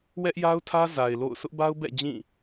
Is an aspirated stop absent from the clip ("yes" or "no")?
no